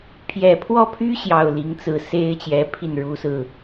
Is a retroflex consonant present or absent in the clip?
present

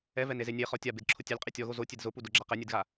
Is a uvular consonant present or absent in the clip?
present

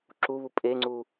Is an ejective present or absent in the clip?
present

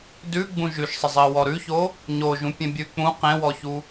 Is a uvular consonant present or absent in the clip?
present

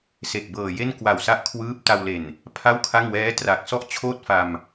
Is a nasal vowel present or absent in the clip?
absent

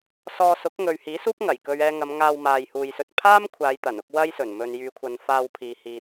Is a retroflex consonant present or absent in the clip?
absent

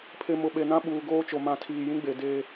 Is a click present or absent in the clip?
absent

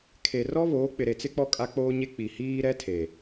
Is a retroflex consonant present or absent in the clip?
absent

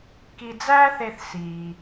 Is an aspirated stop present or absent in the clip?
absent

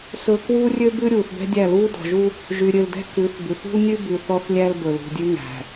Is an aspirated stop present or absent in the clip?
absent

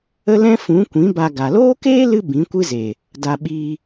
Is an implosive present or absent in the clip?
present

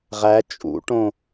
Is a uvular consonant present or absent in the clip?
present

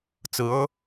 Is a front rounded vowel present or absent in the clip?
absent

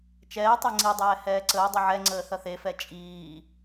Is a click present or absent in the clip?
present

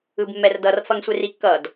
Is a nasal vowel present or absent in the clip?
absent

